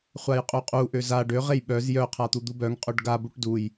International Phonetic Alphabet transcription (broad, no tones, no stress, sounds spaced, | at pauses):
χʷ a j qʼ u qʼ u ʔ ø z a ɖ ø ʁ e j ɓ œ z j œ qʰ a t̪ u d̪ u b œ ŋ qʼ ø ɖ ɡ a b u ʈ d u j